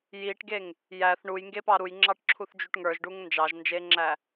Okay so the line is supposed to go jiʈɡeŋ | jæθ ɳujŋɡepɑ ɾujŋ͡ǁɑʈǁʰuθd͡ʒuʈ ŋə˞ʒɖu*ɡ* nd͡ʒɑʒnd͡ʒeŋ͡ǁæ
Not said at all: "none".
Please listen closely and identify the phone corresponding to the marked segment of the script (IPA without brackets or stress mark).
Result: ŋ